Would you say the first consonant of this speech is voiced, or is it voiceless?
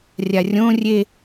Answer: voiced